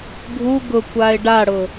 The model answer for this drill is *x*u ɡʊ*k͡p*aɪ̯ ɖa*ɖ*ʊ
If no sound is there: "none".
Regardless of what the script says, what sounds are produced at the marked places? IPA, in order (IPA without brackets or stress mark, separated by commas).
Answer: ɡʱ, kʷ, ɽ